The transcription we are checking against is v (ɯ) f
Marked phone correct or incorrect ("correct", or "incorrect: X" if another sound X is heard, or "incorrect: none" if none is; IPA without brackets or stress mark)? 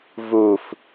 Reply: incorrect: u